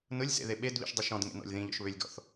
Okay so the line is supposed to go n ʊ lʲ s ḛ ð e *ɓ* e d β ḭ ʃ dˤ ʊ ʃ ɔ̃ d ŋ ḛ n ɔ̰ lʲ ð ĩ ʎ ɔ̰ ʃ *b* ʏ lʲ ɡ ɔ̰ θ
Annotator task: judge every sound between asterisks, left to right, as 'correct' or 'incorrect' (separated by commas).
correct, incorrect